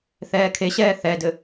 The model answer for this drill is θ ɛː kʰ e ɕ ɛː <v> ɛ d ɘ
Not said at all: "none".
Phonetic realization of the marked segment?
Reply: θ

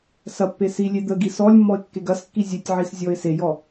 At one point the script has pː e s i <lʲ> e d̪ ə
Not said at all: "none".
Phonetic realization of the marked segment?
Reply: lʲ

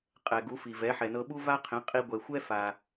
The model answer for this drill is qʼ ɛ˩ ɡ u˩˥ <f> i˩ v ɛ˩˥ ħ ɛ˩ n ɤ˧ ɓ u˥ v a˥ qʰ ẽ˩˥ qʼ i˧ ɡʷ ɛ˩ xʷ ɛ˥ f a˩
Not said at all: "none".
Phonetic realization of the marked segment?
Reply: f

